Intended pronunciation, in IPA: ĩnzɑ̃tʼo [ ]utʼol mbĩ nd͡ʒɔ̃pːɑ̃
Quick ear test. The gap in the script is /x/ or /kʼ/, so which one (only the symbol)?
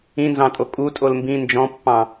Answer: kʼ